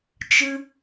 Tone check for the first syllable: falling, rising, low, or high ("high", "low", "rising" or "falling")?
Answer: high